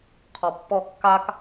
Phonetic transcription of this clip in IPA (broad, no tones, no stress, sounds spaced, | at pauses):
qʰ ɔ pː ɔ kː a k